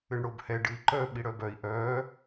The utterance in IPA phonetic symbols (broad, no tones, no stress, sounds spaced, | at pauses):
ɨ ɳ ɽ o b h ɛ ɖ ɨ i̯ ǃ œ ɓ i ɽ œ b œ i̯ ʔ œ